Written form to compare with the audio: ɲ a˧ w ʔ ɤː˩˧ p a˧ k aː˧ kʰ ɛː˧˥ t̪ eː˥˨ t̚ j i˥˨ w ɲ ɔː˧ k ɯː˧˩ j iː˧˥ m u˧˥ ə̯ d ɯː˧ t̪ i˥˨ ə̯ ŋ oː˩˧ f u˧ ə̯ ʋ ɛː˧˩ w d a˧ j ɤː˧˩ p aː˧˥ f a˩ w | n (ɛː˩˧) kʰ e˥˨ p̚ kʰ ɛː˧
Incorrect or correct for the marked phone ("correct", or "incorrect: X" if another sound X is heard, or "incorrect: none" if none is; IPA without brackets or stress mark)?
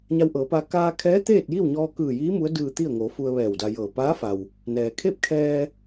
incorrect: ɛː˩